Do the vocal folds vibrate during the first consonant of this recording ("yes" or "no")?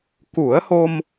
no